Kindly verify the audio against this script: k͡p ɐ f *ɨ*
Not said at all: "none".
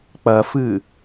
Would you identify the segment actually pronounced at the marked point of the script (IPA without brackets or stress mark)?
ɨ